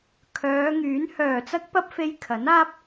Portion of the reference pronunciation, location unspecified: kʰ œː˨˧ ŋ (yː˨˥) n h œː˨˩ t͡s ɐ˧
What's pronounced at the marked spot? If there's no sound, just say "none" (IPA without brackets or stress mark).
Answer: yː˨˥